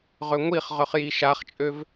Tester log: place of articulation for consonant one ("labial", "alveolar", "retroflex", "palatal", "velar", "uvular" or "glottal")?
uvular